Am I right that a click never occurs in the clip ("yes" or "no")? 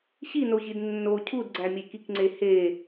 no